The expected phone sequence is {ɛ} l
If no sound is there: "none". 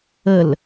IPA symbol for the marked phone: ə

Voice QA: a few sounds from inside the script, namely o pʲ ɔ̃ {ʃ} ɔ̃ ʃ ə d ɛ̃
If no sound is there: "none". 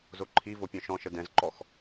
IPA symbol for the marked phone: ʃ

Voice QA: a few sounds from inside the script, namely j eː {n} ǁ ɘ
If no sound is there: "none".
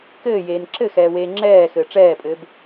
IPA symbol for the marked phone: n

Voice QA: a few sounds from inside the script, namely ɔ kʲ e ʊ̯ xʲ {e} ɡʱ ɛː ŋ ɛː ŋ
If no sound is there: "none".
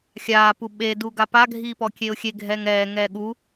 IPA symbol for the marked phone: e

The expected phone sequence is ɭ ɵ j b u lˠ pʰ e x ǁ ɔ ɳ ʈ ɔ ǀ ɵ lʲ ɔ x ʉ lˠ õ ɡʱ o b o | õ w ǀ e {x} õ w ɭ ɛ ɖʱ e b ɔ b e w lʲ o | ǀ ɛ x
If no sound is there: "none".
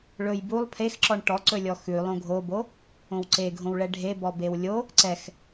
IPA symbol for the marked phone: ɡʱ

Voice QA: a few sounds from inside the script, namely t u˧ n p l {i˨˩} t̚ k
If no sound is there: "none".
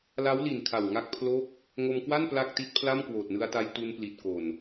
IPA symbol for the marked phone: i˨˩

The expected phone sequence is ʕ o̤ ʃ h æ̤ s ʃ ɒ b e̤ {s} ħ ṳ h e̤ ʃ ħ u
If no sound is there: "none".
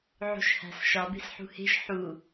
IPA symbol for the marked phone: s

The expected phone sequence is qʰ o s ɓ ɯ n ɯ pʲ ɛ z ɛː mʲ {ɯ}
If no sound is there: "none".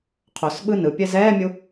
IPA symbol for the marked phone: u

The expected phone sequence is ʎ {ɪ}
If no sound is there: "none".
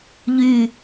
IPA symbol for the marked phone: y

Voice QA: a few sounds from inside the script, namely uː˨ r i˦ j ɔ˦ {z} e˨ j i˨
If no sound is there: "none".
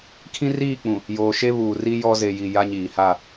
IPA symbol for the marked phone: z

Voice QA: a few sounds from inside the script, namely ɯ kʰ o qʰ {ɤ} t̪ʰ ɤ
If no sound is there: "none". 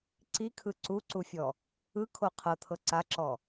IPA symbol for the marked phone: ɤ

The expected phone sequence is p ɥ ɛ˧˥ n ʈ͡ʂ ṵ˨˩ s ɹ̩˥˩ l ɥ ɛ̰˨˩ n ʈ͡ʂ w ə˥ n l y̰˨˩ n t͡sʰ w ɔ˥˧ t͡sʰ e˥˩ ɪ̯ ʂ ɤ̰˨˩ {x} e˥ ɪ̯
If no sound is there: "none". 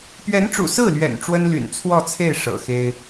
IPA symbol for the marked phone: x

